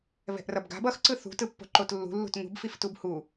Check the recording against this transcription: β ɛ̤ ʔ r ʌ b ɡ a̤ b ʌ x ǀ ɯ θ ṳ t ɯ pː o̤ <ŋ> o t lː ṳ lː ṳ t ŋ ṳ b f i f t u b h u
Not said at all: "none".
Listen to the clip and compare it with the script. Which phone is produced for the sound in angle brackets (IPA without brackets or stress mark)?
ǃ